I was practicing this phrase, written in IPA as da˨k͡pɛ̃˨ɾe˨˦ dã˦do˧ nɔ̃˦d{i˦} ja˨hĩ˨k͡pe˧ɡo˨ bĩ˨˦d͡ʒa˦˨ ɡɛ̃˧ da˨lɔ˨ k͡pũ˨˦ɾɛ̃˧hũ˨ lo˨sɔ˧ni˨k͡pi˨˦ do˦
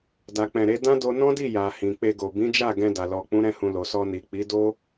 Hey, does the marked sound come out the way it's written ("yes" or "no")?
no